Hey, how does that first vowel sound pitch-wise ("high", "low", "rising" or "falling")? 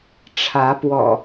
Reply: rising